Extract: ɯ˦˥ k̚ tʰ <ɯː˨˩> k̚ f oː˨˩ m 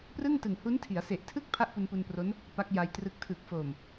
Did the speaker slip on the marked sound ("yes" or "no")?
no